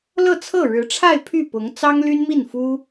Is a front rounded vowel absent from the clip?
no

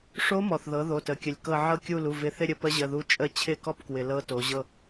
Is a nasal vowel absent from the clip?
yes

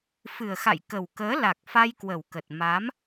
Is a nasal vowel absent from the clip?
yes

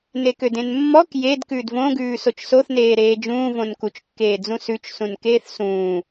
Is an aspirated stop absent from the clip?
yes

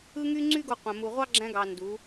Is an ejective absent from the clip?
yes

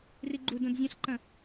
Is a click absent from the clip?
no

